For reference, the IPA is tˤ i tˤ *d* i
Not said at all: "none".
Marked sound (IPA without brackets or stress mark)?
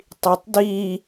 d